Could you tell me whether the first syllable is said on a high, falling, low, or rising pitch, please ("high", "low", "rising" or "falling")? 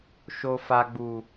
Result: low